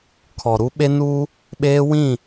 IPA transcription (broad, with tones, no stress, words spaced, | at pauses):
kʰɔ˨ɾu˦ɓe˦nuː˦ | ɓeː˦wĩ˦˨